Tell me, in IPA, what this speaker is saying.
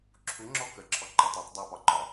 ǁʰ u ŋ͡ǁ ɔ k ə ǁʰ ɔ ǃ ɒ tˤ ɒ tˤ dˤ u p ɒ ǃ ɒ

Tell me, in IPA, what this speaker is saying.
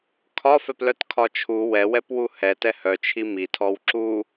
kʰ ɒ f ɛ p l œ t kʰ ɒ t͡ʃʰ u w ɛ w ɛ p w u h ɛ t ɛ h œ t͡ʃʰ i m i tʰ ɔ w ǁ u

